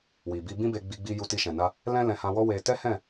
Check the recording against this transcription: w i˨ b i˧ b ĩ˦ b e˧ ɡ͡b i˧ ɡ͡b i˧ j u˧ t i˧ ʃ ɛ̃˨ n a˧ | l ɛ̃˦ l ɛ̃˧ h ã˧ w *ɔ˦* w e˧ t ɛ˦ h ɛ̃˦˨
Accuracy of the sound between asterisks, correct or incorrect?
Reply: correct